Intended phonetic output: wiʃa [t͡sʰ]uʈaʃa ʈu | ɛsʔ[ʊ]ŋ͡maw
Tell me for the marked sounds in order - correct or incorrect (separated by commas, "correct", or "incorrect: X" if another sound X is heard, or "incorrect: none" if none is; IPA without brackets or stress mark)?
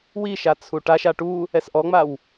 correct, incorrect: ɔ